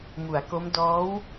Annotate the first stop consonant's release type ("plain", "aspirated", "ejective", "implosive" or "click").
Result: plain